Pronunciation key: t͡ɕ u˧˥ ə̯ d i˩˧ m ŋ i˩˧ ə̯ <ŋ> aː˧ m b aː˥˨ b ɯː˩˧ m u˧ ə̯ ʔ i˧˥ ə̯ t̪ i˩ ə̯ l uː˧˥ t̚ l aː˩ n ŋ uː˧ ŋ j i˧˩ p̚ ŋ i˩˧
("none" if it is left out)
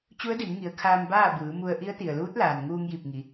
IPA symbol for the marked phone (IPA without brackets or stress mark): kʰ